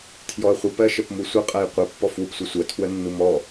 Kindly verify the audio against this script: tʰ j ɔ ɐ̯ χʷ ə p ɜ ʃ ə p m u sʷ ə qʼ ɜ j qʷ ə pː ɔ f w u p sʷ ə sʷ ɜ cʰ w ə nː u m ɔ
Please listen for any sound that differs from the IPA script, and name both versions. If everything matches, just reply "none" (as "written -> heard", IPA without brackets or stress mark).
cʰ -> tʰ